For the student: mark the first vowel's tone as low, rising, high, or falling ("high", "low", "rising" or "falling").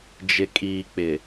low